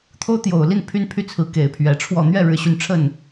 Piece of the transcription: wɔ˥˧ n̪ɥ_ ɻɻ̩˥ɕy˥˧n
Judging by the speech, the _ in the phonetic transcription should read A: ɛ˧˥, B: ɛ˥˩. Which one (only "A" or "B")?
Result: B